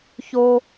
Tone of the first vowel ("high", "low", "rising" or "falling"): high